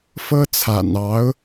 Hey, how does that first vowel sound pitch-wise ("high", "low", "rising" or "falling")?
high